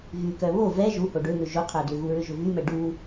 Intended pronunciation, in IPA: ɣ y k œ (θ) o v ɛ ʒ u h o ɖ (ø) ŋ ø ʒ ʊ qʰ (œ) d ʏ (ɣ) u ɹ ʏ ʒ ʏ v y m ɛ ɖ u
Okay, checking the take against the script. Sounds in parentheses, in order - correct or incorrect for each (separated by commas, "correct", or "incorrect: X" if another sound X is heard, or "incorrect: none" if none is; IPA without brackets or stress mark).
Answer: incorrect: β, correct, correct, correct